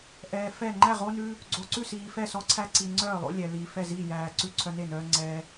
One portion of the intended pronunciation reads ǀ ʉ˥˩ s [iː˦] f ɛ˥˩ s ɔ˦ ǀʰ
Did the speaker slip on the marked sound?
yes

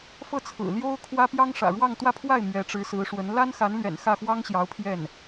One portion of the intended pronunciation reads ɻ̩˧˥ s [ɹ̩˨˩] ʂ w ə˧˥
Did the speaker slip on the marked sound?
yes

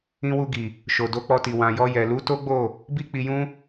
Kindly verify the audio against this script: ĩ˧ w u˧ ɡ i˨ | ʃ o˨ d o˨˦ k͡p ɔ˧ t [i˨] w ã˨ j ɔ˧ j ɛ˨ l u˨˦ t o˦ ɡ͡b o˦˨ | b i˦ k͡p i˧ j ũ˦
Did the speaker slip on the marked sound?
no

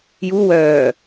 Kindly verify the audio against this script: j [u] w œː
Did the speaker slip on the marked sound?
no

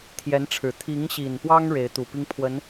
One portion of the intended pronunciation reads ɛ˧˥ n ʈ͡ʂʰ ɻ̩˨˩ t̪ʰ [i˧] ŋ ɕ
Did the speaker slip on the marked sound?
yes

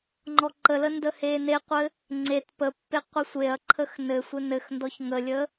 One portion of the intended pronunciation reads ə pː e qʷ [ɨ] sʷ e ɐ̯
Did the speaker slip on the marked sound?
yes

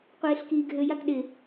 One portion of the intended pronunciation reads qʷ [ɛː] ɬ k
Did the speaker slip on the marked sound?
yes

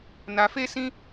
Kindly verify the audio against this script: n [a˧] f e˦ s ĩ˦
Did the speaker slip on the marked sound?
no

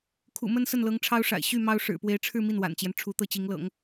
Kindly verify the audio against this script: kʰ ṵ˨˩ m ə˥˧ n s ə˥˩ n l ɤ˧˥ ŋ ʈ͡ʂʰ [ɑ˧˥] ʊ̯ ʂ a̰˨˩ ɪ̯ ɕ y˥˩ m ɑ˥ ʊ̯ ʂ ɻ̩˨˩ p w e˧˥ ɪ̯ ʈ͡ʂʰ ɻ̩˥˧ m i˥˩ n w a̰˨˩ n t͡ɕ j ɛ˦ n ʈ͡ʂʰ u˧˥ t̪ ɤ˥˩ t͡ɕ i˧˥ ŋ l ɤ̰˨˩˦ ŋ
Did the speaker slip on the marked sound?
yes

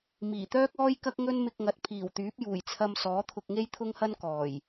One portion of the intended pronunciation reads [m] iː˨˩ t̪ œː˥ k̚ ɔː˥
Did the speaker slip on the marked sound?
no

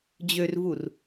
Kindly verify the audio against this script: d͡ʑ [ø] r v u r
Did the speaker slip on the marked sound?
no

